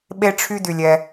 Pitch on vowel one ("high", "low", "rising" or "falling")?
high